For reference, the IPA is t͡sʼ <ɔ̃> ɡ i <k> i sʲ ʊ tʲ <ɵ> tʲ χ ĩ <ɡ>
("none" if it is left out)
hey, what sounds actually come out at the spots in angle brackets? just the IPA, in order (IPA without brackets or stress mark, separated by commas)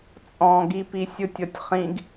ɔ̃, p, ɔ, ɡ